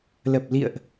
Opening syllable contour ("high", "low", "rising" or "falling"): low